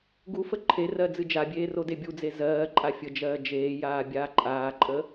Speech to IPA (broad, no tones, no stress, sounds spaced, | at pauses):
ɡ u f ə ǃʰ e r ɜ d͡z ɨ d͡ʒ a bʲ eː r o d e bʲ u d͡z e z ɜː ǃʼ a fʲ ə d͡ʒ ɜː d͡ʒ eː j aː bʲ aː ǃʼ aː ǃʼ ə